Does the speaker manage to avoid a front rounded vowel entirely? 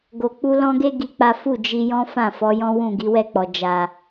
yes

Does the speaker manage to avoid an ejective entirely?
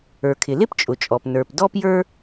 no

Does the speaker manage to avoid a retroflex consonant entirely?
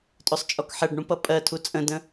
no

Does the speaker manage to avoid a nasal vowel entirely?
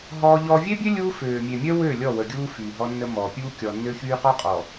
yes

